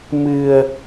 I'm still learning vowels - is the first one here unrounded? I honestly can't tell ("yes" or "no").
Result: yes